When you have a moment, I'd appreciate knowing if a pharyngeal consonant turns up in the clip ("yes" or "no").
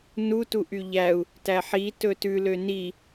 yes